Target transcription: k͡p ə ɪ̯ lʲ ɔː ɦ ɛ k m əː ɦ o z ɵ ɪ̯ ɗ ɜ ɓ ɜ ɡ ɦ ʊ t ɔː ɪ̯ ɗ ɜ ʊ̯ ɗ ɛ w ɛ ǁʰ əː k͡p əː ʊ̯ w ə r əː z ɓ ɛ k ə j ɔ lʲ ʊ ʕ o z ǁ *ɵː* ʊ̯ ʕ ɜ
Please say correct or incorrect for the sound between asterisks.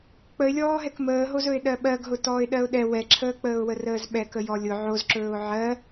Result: correct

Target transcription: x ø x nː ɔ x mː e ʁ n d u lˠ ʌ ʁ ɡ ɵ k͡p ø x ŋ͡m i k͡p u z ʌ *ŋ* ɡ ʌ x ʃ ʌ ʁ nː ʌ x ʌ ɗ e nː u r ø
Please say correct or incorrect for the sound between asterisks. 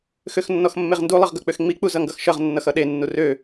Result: correct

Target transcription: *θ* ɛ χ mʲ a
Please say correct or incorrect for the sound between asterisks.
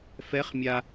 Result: incorrect: f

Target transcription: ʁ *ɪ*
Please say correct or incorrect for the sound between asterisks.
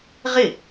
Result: correct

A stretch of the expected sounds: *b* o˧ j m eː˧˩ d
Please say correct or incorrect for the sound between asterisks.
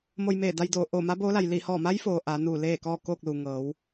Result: incorrect: m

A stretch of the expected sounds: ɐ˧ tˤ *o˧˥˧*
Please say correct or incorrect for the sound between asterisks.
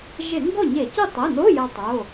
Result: incorrect: o˩˧˩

